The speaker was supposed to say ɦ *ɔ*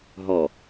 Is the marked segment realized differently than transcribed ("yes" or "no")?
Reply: no